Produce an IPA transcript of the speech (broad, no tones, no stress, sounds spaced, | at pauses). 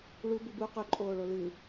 ɭ u b ɨ b u q ɵ ǃʼ oː ɭ o l ɨ